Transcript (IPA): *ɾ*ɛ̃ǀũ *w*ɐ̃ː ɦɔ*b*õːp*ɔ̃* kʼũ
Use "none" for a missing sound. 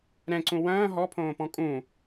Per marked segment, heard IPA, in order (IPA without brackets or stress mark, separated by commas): ɾ, w, pʰ, ɔ̃